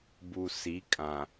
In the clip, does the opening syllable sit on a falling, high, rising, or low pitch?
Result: low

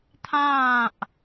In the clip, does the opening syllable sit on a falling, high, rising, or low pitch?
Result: falling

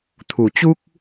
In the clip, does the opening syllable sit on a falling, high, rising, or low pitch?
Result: low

